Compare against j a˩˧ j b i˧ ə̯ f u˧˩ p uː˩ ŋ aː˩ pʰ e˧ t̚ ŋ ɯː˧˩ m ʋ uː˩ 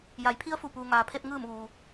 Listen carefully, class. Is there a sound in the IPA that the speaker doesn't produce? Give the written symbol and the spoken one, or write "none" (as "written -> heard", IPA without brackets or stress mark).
b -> pʰ